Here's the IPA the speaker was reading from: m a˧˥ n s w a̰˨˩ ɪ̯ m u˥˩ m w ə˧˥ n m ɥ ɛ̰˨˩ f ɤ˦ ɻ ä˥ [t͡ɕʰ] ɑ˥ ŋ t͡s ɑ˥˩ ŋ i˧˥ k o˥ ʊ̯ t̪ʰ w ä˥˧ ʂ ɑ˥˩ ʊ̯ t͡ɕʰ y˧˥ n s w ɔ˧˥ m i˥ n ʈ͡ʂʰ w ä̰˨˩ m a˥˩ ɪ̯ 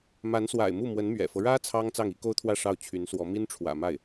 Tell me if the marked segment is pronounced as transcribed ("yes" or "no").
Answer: no